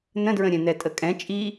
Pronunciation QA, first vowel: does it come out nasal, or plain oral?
nasal